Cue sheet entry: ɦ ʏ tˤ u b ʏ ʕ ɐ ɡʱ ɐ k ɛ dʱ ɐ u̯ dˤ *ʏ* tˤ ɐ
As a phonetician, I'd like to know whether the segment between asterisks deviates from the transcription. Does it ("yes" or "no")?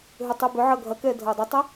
no